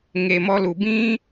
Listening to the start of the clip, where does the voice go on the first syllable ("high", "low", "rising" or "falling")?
low